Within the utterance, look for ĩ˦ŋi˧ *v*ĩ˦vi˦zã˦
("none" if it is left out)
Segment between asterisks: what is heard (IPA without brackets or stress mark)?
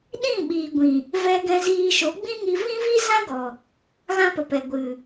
v